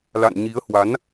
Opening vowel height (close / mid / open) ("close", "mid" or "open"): open